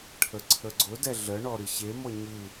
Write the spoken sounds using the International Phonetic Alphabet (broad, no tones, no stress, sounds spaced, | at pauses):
ʈʰ ə ǀʰ ə ɡ͡ǀ ʊ d ɛ ɮ ə ɳ ɔ ɾ ɨ ɕ e m ɔ ɲ ɨ